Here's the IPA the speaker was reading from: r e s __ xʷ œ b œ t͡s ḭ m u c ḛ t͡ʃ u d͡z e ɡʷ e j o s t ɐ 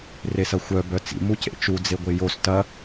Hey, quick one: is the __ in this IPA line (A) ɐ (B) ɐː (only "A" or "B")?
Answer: A